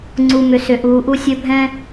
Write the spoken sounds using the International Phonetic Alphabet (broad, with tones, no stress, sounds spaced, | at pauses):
ŋ͡ǀ u˨ m ʏ˨ s ʏ˨ ʔ uː˨ ʔ u˦ sʲ ɵ˦ bʱ ɛ̃˦